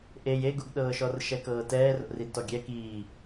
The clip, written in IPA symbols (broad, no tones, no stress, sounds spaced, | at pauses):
ʔ e j e ɡ u ɡ ɗ ɤː ʃ ɔ r ʃ ɛ k ɤː t ɛː r o̰ r i d t ɔ ɡʲ ɛ k iː